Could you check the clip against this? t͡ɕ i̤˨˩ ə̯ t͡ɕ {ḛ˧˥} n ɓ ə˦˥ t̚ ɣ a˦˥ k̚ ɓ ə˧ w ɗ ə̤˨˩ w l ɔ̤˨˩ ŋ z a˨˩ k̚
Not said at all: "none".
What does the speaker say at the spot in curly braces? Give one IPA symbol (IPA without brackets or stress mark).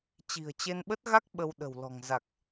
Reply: e˧